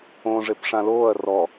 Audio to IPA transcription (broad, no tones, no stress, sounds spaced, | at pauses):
õː ʐ e p ʂ ã l oː ɐ̯ r ɔ